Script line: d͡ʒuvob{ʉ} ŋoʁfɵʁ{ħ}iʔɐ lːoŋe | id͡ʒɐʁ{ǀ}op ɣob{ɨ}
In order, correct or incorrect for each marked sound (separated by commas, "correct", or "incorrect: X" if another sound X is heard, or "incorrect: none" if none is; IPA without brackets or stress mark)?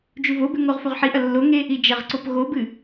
correct, correct, correct, correct